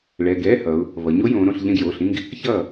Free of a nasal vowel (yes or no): no